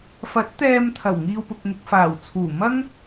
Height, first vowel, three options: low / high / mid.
low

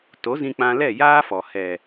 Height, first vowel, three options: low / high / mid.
mid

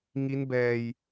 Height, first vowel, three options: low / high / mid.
high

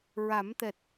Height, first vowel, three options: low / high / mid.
low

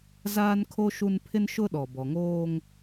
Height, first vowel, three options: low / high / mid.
low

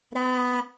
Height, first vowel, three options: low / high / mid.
low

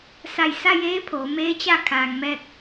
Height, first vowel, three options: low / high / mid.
low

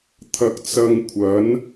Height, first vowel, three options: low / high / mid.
low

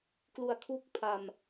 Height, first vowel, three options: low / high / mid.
high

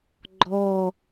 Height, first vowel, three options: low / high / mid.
mid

